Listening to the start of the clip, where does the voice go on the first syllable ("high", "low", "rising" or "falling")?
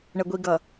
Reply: low